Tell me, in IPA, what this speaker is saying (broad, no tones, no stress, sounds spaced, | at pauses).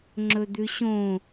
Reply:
ŋ͡ǁ ɵ d̪ ʉ ɕ õ